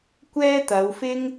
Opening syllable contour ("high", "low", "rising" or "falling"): high